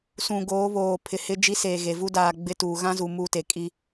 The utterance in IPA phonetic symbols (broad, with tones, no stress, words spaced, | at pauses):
sũ˨ ɡoː˨˦βoː˨pʰɪ˨hɪ˦ d͡ʒi˦seː˨ ɣe˨vu˦ daː˨ ɡ͡bɪ˦tuː˨ ɣã˦zu˨ mu˦˨te˨ kʼi˦